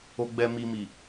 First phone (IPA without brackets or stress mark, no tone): o